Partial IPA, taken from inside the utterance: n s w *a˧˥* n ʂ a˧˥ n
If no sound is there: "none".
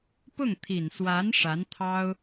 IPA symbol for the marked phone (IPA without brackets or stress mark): a˧˥